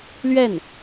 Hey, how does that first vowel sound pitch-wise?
falling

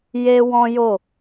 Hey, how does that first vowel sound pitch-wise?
high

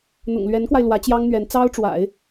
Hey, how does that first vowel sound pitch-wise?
low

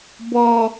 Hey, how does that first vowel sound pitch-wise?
high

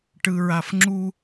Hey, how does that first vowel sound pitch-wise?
low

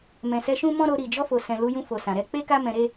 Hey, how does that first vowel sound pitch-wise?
low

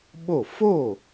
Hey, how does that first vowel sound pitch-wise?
falling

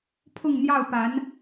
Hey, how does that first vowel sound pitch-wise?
falling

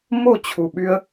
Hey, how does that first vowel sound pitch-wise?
falling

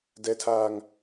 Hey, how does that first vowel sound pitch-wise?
high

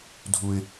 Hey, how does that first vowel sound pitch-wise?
high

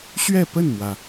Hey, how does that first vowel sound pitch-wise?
falling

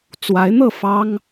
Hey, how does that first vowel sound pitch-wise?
rising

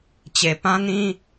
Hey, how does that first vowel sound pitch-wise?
low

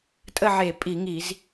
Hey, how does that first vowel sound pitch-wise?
falling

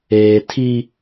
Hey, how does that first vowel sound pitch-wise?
low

